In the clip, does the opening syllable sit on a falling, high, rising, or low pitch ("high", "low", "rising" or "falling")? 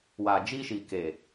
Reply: low